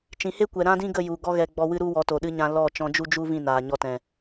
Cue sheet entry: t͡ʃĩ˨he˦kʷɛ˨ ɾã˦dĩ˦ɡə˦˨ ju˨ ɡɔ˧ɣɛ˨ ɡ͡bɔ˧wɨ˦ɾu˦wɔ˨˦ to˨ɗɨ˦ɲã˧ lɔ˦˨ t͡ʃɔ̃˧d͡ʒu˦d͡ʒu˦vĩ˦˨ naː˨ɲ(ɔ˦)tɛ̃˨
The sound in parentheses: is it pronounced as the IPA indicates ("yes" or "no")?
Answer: no